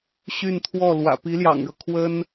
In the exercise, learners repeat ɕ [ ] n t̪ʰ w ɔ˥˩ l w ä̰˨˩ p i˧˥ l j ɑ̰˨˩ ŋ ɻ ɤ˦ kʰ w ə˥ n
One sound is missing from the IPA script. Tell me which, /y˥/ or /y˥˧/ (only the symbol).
y˥˧